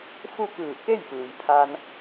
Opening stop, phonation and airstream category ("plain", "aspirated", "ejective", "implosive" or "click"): plain